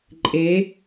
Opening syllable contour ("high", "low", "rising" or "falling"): rising